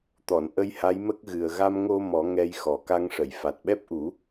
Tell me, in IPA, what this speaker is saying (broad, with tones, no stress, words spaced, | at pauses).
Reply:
t̪ɔ˨˩˨n ʔə˧jha˧˥jmə˦˥k̚ɣɨ˨˩ə̯ ɣa˧mŋo˧ mɔ˨˩˦ ŋɛ˧j xɔ˨˩ ka˧ŋʂə˨˩˨j fa˨˩t̚ɓɛ˦˥p̚ʔu˨˩˦